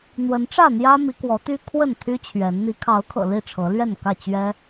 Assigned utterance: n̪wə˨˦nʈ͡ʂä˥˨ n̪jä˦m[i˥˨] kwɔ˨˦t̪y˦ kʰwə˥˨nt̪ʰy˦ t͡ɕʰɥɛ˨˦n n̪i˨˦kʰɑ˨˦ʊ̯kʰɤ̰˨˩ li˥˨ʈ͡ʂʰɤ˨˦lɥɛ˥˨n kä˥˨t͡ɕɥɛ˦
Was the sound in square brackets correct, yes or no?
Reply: no